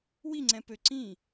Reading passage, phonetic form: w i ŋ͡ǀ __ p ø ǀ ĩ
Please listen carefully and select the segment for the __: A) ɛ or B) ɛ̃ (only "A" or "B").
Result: B